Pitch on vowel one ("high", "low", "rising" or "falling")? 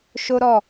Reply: high